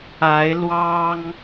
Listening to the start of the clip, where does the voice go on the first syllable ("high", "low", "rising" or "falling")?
rising